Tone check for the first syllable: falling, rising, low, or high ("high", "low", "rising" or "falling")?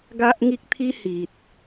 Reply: high